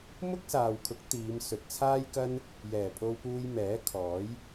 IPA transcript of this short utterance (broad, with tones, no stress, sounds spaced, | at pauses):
m ʊ˥ k̚ s aː˨ w kʰ ʊ˨˥ k̚ t̪ iː˨˧ m s ɵ˨ t̚ t͡sʰ aː˥ j k ɐ˥ n | j ɛː˨˩ pʰ o˧ w p uː˧ j m ɛː˨˥ kʰ ɔː˨˥ j